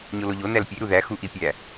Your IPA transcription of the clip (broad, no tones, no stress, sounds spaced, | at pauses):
ɲ o l o ʎ o n æ l pʲ e ɾ u ð æ x u ʔ i pʲ æ